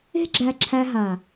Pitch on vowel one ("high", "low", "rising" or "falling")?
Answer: high